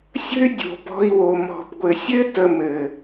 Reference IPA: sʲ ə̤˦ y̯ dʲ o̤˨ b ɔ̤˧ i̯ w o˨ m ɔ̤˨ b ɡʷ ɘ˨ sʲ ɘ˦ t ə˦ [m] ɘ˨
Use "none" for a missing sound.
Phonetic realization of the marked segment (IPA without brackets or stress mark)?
m